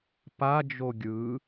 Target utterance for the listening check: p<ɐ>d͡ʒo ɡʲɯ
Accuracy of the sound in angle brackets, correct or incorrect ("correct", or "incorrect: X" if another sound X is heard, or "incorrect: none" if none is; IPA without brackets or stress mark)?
incorrect: a